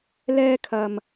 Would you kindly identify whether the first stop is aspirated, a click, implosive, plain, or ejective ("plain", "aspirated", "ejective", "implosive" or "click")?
aspirated